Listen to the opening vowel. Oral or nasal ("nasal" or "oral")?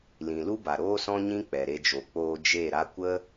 nasal